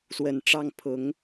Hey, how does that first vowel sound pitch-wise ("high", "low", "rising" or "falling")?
low